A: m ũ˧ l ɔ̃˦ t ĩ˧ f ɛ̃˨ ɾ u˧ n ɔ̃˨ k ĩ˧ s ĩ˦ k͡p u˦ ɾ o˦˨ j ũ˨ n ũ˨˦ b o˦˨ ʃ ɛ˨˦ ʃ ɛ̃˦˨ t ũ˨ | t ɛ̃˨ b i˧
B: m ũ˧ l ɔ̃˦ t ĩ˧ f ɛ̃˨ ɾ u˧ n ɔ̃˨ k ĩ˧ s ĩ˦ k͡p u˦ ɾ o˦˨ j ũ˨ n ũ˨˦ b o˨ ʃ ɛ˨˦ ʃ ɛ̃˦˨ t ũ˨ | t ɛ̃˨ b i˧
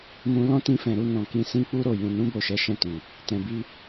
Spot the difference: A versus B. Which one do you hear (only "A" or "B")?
A